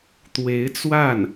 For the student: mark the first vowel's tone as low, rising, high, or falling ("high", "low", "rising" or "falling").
rising